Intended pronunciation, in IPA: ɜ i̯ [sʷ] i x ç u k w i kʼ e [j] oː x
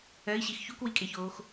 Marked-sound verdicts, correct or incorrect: incorrect, incorrect

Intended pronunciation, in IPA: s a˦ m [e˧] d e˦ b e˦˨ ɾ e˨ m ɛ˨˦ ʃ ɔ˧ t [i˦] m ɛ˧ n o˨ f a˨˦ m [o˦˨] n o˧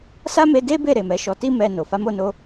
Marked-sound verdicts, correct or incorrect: correct, correct, correct

